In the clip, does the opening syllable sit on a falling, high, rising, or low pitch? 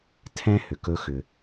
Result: high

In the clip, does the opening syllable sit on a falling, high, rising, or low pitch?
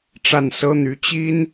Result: falling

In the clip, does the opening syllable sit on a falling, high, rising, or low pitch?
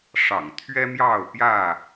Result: low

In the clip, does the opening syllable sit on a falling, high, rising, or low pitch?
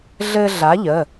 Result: high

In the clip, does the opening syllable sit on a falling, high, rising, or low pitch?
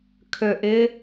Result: low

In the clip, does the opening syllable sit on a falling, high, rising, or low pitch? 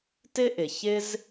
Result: high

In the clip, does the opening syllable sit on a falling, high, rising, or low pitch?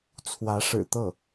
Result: rising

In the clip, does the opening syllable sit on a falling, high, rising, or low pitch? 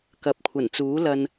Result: rising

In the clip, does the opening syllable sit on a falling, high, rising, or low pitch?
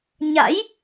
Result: rising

